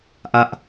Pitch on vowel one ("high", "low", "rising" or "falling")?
high